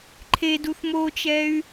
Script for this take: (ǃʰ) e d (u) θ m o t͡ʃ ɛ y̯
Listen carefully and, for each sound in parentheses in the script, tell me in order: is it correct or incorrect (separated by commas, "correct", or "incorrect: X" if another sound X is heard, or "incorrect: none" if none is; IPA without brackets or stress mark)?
correct, correct